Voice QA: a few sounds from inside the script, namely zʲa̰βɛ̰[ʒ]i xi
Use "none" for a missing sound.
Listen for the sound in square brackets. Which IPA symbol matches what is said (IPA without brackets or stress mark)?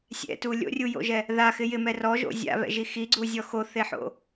ʒ